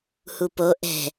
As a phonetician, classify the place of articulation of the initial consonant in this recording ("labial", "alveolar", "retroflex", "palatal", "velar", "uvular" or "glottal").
glottal